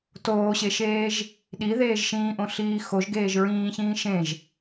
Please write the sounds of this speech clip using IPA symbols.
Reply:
toːɕeʃeːʒ | ɗiðeːʒ ʃĩːʔõɬiː xoʒ ɡeːʒɹĩːçĩː ʃẽʒ

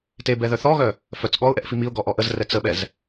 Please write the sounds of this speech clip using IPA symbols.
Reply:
tebɛðœ θɔɣœ | fœt͡s ɠɔʊ̯ʔɛʔfi miʊ̯ɡɔʔɔ ʔəzrɛ t͡səɓɛz

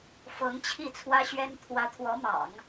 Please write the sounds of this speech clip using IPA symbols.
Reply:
fɤ˧˥ŋ t͡ɕʰi˥˩t͡sʰwä˥ɕɥɛ˥n t̪ʰwä˧˥t̪ʰwɔ˧˥mɑ̰˨˩˦ŋ

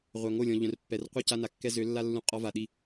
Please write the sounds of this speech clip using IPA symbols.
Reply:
ʁʷœ˨ ŋo˦˨lʲɔ̃˨ʎœ̃˨rpːɛ˨r qʷi˦˨ca˦na˨kːɛ˦ zø˨˦lːa˦ lːũ˦ qʼɔ˦va˨ɗi˦˨

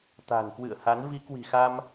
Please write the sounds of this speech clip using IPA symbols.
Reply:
t̪a̤˨˩nkwɨ̰˧˨ə̯ha˨˦n vi˨˦ kwi̤˨˩xa˧m

